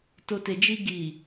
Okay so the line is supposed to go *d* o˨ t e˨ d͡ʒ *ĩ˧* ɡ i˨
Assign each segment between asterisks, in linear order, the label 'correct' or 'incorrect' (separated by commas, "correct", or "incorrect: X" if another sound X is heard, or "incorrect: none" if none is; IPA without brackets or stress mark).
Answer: incorrect: t, incorrect: i˧